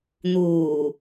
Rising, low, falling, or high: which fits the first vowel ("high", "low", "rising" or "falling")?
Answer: low